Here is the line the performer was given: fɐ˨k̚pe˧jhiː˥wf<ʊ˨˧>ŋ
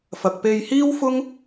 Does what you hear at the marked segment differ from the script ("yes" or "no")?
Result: yes